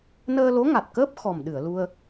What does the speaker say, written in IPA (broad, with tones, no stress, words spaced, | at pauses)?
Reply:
nəː˧lo˧˥ŋa˨˩t̚kəː˦˥p̚ xɔ˨˩mɗɨ˨˩˨ə̯ lu˧ə̯